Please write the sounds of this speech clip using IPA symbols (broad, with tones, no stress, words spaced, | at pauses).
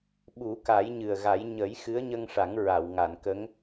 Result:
ɓu˨˩˦ka˨˩˦jɲɨ˨˩ə̯ɣa˨˩˦j ɲə˨˩˦j xɨ˧˥ə̯ɲə˧ŋʂa˨˩˦ŋ ɹa˨˩˨wŋa˨˩˨nkə˧˥ŋ